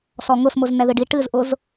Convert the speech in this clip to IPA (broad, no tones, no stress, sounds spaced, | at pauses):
s ɔ ŋ ʊ s m ʊ z n ɛ ð ɨ ɖ i ʈ ɨ z ʔ ʊ z